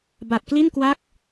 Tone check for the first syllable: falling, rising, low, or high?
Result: low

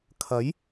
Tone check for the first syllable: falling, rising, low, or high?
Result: rising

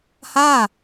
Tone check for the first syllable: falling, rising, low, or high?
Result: falling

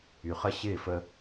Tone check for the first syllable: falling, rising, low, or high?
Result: low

